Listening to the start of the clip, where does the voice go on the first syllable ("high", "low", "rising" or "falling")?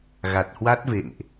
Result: low